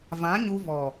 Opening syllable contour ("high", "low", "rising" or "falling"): rising